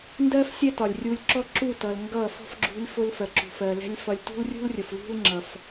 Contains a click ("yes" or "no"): yes